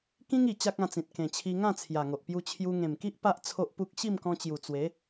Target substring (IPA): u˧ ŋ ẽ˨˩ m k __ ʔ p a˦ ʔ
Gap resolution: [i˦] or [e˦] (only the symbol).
i˦